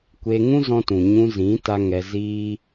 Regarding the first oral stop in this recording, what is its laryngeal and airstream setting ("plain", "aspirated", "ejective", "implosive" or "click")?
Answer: plain